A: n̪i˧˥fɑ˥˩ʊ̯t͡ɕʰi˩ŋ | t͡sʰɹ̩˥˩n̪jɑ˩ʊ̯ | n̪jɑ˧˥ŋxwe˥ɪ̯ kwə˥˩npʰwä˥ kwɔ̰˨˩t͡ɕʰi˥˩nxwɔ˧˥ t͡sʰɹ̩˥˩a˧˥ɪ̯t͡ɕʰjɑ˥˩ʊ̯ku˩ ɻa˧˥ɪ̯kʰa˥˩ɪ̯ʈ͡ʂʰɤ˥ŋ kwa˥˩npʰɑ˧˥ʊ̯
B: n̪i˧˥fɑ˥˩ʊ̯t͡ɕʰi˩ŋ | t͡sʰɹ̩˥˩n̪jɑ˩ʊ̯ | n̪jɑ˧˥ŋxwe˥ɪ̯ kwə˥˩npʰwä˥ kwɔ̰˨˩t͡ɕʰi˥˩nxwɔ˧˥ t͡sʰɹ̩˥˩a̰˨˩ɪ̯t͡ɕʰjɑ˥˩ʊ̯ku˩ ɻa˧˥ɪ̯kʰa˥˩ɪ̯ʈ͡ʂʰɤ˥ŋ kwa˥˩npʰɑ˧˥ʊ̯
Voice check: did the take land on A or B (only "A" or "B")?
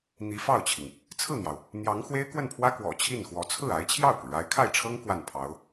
A